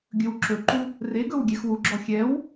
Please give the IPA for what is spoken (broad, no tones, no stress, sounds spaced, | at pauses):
ɡʲ ɵ w ǁ ɵ ǃ u | r e ɡ ɵ w ɡʲ ɛ x w u ɡ͡ǁ ɔ xʲ ɛ w